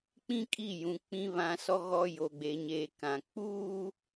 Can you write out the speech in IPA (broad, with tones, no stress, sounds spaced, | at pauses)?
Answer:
k͡p ĩ˦ kʼ i˦˨ j ũ˨ k͡p ĩ˨ β ã˨ s ɔ˨ ɣ ɔ˨ j o˨ ɡ͡b e˨ ɲ eː˨ k ã˨ k͡p uː˦